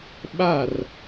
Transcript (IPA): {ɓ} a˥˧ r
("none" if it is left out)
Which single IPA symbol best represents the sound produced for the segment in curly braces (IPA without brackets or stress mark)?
ɓ